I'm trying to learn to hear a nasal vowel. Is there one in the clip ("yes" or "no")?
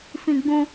yes